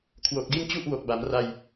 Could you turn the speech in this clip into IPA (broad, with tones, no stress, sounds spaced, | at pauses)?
kʰ w o˨˩ k̚ d i˥˩ n t͡ɕ u˥˩ ʔ w o˨˩ k̚ b a˩˦ m r a˧ j